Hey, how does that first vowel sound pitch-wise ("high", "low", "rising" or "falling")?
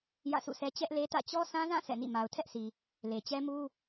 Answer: falling